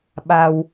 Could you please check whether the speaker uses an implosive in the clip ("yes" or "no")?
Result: yes